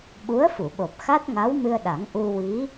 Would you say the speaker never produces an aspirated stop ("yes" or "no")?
yes